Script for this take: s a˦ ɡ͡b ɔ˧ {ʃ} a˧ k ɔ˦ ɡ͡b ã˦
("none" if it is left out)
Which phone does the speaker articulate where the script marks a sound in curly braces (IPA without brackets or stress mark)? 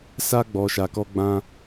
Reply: ʃ